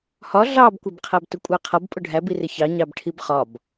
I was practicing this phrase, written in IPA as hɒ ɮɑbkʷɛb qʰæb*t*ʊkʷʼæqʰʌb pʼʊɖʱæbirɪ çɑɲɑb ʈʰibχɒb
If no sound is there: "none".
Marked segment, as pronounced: t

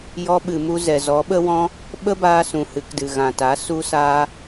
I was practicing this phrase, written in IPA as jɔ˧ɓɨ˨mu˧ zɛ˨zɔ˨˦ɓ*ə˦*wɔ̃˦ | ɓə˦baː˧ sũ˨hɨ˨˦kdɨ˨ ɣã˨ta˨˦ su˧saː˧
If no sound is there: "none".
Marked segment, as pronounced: ə˦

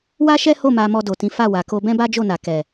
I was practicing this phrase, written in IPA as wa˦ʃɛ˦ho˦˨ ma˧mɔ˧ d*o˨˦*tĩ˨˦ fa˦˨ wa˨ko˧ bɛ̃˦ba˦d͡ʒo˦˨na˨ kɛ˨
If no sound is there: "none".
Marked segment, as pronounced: o˨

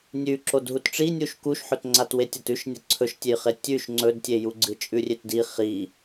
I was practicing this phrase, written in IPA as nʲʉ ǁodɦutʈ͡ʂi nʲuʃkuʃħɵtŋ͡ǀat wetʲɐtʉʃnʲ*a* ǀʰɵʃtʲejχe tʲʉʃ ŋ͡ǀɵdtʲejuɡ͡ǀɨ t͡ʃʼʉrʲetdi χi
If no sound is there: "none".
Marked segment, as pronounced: ɐ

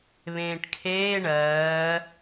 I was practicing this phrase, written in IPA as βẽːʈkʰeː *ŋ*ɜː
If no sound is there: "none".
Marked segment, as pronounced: ɳ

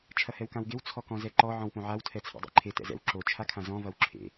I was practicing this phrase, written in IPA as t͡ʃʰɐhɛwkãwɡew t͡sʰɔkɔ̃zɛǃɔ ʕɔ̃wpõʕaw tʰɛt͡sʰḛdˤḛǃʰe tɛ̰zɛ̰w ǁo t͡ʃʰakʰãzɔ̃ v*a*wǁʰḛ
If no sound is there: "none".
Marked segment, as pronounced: ɐ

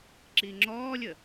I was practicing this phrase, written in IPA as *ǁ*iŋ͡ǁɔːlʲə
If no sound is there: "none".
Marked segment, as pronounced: ǁ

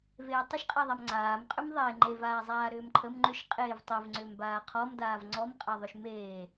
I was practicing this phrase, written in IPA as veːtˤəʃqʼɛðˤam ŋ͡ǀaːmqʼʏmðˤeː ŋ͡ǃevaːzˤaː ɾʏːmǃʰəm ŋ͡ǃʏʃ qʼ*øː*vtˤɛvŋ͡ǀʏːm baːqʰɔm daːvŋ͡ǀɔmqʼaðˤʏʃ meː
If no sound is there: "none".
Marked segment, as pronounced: eː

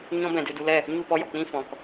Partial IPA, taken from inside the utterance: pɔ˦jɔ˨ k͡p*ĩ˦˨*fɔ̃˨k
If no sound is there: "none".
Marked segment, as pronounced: ĩ˦˨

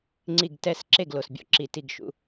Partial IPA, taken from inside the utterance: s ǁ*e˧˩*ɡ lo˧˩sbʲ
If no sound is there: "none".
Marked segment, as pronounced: e˧˩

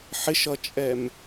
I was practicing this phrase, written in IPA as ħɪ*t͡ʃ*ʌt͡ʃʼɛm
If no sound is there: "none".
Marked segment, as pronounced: ʃ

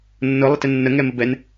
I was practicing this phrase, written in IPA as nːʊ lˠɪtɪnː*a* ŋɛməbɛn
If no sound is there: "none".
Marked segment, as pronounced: ə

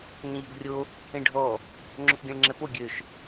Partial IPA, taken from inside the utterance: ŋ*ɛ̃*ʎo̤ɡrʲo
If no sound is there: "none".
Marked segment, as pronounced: ɛ̃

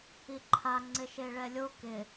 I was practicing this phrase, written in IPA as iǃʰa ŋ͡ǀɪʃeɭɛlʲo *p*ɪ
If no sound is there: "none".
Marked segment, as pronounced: k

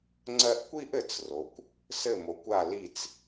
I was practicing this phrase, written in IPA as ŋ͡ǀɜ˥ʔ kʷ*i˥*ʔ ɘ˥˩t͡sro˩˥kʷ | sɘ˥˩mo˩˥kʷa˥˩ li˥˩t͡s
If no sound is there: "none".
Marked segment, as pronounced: i˥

